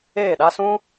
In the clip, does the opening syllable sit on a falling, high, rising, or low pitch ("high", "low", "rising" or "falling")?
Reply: falling